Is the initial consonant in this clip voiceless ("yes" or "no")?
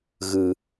no